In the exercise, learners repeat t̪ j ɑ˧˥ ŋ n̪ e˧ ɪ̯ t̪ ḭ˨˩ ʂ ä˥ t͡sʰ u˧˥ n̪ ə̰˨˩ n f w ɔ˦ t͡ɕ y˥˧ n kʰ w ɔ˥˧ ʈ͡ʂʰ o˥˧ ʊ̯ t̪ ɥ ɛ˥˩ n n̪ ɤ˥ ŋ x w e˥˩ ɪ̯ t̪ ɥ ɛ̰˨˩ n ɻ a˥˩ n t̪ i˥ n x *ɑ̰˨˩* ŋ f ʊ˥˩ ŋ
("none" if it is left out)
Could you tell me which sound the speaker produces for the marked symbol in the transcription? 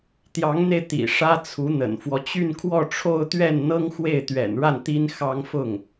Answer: ɑ˥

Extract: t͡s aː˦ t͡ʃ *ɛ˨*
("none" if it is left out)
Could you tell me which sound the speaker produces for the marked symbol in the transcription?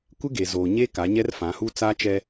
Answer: ɛ˦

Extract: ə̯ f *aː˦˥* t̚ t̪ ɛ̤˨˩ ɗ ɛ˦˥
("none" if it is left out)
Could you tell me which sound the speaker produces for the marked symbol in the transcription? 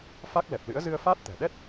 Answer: aː˦˥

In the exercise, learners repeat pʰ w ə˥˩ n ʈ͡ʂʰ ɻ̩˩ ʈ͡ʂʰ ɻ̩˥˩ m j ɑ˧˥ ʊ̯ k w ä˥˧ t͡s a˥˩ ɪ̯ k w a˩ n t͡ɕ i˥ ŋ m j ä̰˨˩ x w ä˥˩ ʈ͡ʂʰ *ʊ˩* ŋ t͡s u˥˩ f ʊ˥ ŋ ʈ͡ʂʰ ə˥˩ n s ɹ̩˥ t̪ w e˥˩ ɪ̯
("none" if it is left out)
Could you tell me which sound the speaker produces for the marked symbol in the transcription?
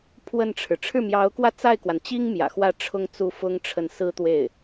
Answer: ʊ˥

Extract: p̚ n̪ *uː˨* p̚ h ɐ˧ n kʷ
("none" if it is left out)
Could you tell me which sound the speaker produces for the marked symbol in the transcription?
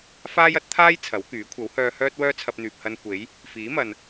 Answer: yː˨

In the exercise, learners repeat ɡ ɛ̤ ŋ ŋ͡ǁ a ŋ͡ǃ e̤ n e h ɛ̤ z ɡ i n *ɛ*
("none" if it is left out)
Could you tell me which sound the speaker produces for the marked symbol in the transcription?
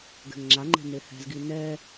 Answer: ɛ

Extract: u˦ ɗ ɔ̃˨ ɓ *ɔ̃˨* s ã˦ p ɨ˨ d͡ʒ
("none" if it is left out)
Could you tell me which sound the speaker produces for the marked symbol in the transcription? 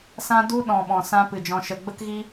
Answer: ɔ̃˨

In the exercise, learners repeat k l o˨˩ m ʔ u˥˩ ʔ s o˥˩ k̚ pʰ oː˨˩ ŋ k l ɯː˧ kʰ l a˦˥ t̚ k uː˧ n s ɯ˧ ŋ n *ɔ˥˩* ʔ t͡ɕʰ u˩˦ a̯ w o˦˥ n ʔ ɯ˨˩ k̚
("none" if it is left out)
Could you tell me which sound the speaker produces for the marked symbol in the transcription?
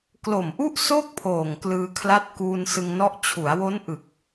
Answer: ɔ˦˥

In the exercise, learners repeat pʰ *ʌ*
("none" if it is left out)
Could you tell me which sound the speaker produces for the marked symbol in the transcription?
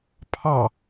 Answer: ɑ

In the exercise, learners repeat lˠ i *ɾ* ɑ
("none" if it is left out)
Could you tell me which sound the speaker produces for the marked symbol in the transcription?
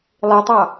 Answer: tˤ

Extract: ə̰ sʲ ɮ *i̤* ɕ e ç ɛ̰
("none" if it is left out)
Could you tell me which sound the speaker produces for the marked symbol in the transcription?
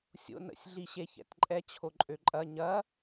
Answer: i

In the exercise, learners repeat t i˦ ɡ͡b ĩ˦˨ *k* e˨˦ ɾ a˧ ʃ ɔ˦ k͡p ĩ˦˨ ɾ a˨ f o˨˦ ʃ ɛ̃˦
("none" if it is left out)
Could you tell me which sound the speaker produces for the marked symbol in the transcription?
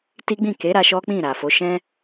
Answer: k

